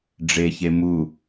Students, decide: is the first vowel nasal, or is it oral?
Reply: oral